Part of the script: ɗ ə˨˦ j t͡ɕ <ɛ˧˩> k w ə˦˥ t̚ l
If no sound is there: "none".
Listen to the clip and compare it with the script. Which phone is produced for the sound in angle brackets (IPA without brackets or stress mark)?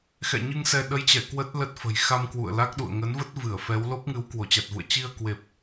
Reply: ɛ˧˩